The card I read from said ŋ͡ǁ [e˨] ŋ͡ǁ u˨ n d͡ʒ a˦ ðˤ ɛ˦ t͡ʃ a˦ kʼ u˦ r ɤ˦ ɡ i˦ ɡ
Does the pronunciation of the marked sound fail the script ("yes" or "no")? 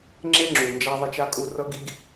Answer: yes